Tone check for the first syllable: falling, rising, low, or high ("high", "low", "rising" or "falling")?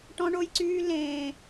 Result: high